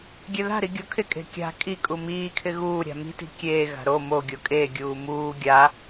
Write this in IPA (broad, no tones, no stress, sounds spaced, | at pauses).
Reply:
ɡʲ e ð a̤ ɾ i ɡʲ o kʰ ɪ kʼ e̤ kʲ a̤ kʼ i kʼ u m iː kʰ ɪ ɣ uː ɾʲ a̤ m i̤ t i̤ kʲ eː ɣ a̤ ɾ o m o ɡʲ o kʼ e ɡʲ uː m uː ɡʲ a